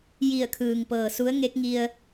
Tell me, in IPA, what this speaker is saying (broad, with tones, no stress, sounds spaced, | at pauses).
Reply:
j i˧˩ ə̯ kʰ ɯː˩ ŋ p ɤː˩ s u˧˥ ə̯ ŋ e˧˥ k̚ ŋ i˧ ə̯